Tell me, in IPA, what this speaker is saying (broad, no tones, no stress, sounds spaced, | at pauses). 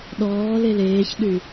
ɗ ɔː l e l eː ç ɗ y